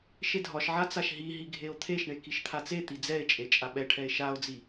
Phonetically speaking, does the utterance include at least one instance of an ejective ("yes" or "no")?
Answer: yes